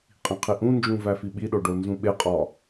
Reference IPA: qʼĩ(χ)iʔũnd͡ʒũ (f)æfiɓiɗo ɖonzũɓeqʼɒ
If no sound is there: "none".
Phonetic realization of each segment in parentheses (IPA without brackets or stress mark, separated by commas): qʰ, v